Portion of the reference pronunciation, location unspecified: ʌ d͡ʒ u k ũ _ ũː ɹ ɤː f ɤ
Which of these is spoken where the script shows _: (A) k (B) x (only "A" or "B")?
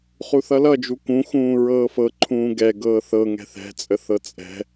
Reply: B